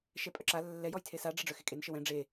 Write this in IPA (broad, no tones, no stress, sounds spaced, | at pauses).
ʃ ɛ pʼ œ ǁ a lː ɛ j ɔ j tʰ e s a ɖ͡ʐ ɜ ɖ͡ʐ œ x e kʼ e n ʃ ə w ɛ̃ ɖ͡ʐ e